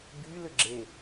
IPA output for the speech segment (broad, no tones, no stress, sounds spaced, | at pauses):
b y l ʏ ɡ͡ǁ e